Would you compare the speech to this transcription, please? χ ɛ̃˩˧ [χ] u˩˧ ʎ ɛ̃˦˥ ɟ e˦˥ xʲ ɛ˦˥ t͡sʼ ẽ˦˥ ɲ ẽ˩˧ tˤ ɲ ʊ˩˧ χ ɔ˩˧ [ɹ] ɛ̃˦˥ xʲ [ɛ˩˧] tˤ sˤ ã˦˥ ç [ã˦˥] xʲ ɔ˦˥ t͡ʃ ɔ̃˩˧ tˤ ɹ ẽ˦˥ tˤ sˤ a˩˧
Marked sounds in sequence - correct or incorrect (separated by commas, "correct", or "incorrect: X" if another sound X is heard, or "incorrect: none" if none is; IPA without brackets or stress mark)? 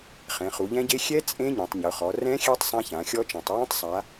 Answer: correct, incorrect: r, incorrect: ɛ˦˥, incorrect: ã˩˧